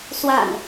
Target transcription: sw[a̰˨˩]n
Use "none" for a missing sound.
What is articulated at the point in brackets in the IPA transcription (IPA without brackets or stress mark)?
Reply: a̰˨˩